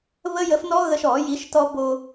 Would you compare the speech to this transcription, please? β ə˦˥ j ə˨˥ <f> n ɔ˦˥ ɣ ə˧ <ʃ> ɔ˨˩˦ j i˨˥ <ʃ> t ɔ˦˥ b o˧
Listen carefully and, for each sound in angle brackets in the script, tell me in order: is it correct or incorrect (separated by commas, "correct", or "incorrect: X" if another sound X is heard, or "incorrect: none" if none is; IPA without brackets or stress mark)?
correct, correct, correct